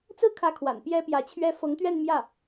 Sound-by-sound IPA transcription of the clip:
t͡sɹ̩˥˩kʰä˧˥kʰwa̰˨˩n pjɛ˥pjä˧˥t͡ɕʰɥɛ˥ fɤ˧˥ŋt̪ɥɛ˥˧nmjä˥˩

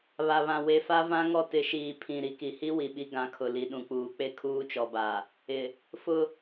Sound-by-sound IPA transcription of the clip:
βa˨βã˨ we˨fa˦vã˦ ŋɔ˦tɪ˨˦ʃiː˨ pʰĩ˨ɾi˨ki˨ hi˦ wi˨ɓi˦ ɡã˨˦kʰʊ˨ li˨ɗũ˨k͡puː˨ k͡pe˦kʰuː˦t͡ʃɔ˨ba˨ | ɪ˨ | fʊ˦

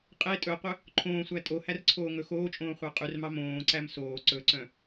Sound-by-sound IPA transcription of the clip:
qʼe tʼɵqʷœ | ǃʰõːsʷæ tʼohær ǀʰoːŋɵxoːt͡ʃʼõː χʷɑqʼʉrmɑ mõːǀæm soː ǀɵǀœ̃

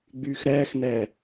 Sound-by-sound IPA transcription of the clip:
ɡ͡byːxɾɛːxnɛː

